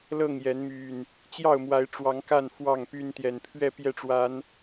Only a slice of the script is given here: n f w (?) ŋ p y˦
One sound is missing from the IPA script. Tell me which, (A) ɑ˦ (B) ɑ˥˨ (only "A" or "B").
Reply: B